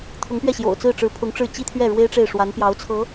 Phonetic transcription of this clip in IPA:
t̪ʰ ʊ˧˥ ŋ p ɥ ɛ˥˩ ɕ j o̰˨˩ ʊ̯ t͡s ɹ̩˥˩ ʈ͡ʂ ɻ̩˧˥ pʰ ʊ˧˥ ŋ ʈ͡ʂ ɻ̩˥˩ t͡ɕ i˥ t̪ʰ ɥ ɛ˥˩ ɻ w e˥ ɪ̯ ʈ͡ʂ e˥˩ ɪ̯ ʂ w a˧˥ n p j ɑ˧˥ ʊ̯ t͡sʰ ɤ˧˥

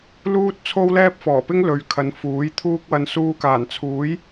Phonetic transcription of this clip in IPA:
l uː˥ t̚ t͡sʰ o˥ w l ɛː˥ p̚ f ɔː˨˩ p ɪ˥ ŋ l ɵ˨˧ ɥ kʰ ɐ˨˧ n f uː˨˥ j t̪ʰ uː˥ k̚ w ɐ˧ n s uː˧ k aː˨˩ n t͡sʰ uː˨˥ j

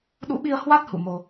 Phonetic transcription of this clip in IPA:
ɗ ṵ˧˥ ɓ i˧ ə̯ h w a˦˥ t̚ h ṵ˧˨ m o˧

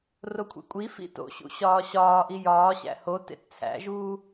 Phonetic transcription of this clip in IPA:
r o kʷʰ ḛ kʷʼ i f ḭ t o̰ ɕ ṵ ɕ ɒː ɕ ɒː ʔ i j ɒː ɕ æ̰ h o t ḛ t t͡sʰ æ̰ ʒ uː

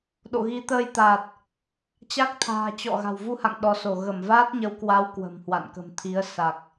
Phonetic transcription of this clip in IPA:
ɗ o̰˧˨ ɣ i˨˦ t̪ əː˧ j t̪ aː˨˩ t̚ | t͡ɕ a˦˥ k̚ t̪ʰ a̤ː˨˩ t͡ɕ ɔ̰˧˨ ɣ a̤˨˩ w v u˧ h a̰˧˨ ŋ ɗ ɔ˨˦ s o˧˩ ɣ ə˧˩ m v aː˦˥ t̚ ɲ ə˨˦ w k w a˨˦ w k w ə̤˨˩ m h w a̰˧˨ n k ə̤˨˩ m t̪ʰ i˨˦ ə̯ s a˨˩ k̚

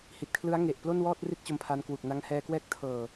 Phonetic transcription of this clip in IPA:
h i˨˩ t̚ kʰ l ɯ˦˥ a̯ ŋ e˨˩ ʔ p l o˥˩ n w ɔː˥˩ t̚ r i˥˩ t̚ t͡ɕ o˧ m pʰ a˧ n k w u˨˩ k̚ n a˧ ŋ h ɛː˧ k w ɛː˦˥ k̚ tʰ ɤː˨˩

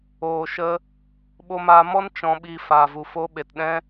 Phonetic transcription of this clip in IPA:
oː˨ ʃ ə˧ | ɓ o˧ m aː˧ m ɔ˦ n t͡ʃ ɔ̃˧ ɓ i˧ f aː˨ v u˨ f o˦ ɓ e˨ t ɗ ɛ̃˦

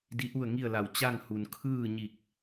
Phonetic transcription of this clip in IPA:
d i˧˥ ʔ u˥˨ ə̯ ŋ i˥˨ ə̯ l a˧˩ w t͡ɕ a˥˨ ŋ h u˩ n kʰ ɯː˥˨ ɲ i˧˩ k̚

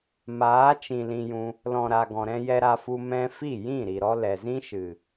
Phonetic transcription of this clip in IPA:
m aː˨˦ t͡ʃ ĩ˨ l ĩ˧ j ũ˧ | l ɔ̃˨ ɾ a˨ ɡ ɔ̃˨ ɾ ɛ̃˧ j ɛ˧ ɾ a˧ f u˧ m ɛ̃˧ f i˦˨ j ĩ˦˨ ɾ i˨ ɾ ɔ˦ l ɛ˨ z ĩ˦ ʃ ɨ˨

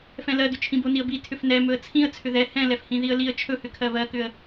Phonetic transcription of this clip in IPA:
f ɛ̃ l ɜ d ʏ t͡ʃʰ ĩ b o n i ə̯ b i tʰ ʏ f n ɛ m ɵ ə̯ t͡sʰ ĩ ə̯ t͡sʰ ʏ ð ɛ h ɛ̃ l ɛ f h ĩ ð i ə̯ l i ə̯ t͡ʃʰ ɵ h ʏ kʰ ɜ β ɜ k ʏ ə̯

